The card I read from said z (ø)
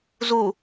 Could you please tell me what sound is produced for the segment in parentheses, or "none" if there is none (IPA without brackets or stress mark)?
u